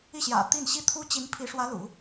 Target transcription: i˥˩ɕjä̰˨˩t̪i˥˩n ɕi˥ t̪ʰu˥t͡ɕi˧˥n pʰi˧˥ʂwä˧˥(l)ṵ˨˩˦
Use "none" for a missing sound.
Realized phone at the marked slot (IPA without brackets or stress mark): l